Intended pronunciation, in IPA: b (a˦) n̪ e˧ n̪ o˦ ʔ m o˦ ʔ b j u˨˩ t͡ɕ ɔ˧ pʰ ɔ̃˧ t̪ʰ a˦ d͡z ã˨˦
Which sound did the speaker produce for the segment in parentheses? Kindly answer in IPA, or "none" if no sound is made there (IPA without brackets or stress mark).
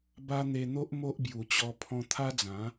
a˦